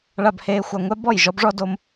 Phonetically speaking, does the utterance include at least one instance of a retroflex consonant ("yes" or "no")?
yes